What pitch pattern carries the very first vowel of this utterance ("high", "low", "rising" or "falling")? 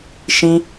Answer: high